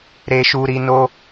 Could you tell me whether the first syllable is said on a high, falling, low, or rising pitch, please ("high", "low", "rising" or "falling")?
high